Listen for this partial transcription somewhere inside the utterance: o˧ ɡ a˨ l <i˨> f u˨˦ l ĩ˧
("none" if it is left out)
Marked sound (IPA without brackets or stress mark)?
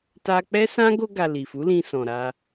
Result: i˨